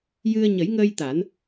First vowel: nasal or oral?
oral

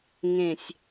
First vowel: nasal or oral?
nasal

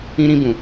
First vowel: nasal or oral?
nasal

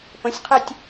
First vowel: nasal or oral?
nasal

